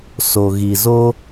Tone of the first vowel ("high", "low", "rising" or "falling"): low